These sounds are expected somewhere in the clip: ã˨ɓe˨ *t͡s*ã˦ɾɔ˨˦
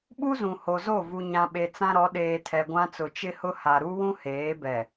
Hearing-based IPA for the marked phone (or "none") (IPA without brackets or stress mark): t͡s